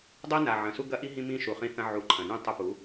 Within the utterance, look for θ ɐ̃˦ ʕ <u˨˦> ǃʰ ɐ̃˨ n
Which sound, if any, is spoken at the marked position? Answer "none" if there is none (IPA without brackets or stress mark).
u˨˦